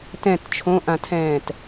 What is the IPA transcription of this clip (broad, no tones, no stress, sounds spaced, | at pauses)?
t ɛ̃ t t͡ʃʰ õ ʔ ã tʰ ɛ̃ː t